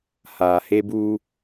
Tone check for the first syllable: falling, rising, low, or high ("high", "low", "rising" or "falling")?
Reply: low